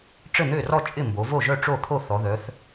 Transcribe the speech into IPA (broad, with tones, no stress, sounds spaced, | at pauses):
ʈ͡ʂ ɘ˥˩ n̪ ø˥˩ r ɔ˥˩ t͡ʃʼ ɪ˥˩ m b o˩˧ v o˥˩ ʒ œ˥˩ ʈ͡ʂ o˥˩ t̪ʰ o˥˩ θ ɔ˩˧ ð œ˩˧ θ